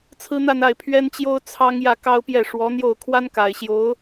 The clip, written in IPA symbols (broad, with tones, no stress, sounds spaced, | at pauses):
t͡sʰ ɹ̩˥ n̪ a˥˧ n a˥˩ ɪ̯ pʰ ɥ ɛ˥ n t͡ɕ j o˥ ʊ̯ t͡sʰ ɑ˥ ŋ j ä˥˩ k ɑ˥ ʊ̯ p j ɛ˥˩ ʂ w ɔ˧˥ n̪ j o˥˩ ʊ̯ kʰ w a˥ n k a˨˩ ɪ̯ ɕ j o˧˥ ʊ̯